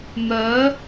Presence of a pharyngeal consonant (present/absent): absent